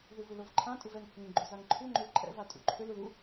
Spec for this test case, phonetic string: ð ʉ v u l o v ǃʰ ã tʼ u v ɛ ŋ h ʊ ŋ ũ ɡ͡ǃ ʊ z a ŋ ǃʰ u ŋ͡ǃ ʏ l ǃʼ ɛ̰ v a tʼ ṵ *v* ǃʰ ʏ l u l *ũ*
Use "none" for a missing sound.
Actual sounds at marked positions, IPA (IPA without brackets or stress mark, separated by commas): none, u